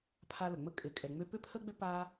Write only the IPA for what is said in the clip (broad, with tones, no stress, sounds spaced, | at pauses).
pʰ a˦ l ə˩ ŋ͡m ə˥ kʼ ɪ˨ kʼ ɛ˨ ŋ͡m ʏ˦ p ʏ˥ pʰ ə˥ ɡ͡b ʏ˥ p a˦